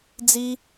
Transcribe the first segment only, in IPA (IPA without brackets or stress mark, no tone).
d͡z